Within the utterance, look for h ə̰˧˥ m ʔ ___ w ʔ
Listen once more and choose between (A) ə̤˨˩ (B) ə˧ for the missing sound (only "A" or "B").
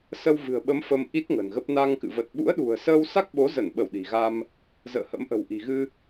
A